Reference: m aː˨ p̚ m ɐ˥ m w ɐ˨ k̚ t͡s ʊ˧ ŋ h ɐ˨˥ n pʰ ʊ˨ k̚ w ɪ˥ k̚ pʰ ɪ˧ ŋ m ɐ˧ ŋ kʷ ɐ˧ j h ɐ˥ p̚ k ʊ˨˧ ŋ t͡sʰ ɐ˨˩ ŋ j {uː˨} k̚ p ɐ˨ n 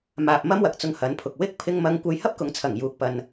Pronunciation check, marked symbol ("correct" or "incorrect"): correct